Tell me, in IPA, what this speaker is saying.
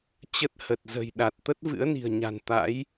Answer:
t͡ɕ ə˦˥ t̚ h ə˨˩ t̚ z ə̤˨˩ j ɗ a˨˩ t̚ t̪ ə˦˥ t̚ v ɨ̰˧˥ ə̯ n i̤˨˩ ə̯ ɲ a̤˨˩ n t̪ a̰˧˥ j

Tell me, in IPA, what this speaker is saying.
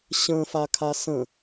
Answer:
ɕ ə̃ f a kʰ a s ə̃

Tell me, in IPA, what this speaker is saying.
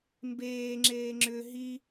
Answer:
m b eː ŋ͡ǁ eː ŋ͡ǁ ʏ ɦ i

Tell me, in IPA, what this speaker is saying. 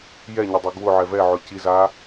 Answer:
j ɛ ɲ ə dˤ e ɡ w ʊ ʕ ɛ v ɛ ʕ ʊ c i z a

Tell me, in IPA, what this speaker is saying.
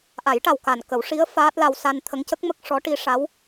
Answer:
ʔ a˨˩˦ j ʈ a˨˩ w k a˨˩ n k ə˨˩˦ w ʂ i˧˥ ə̯ f aː˦˥ t̚ l a˧ w s a˧ n t̪ʰ ə˧˥ ŋ c ə˦˥ k̚ m ə˦˥ k̚ ʂ ɔ˧˥ ʈ i˧˥ ʂ a˧˥ w

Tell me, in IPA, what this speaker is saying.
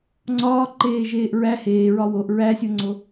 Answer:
ŋ͡ǀ ɒː ǃ eː ʒ eː ʔ ɹ æ h eː ɹ ɒ w o ʔ ɹ æ sʲ o ŋ͡ǀ o

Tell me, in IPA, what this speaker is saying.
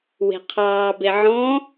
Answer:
w e̤ qʰ ɑː b e ʕ ɔ̃

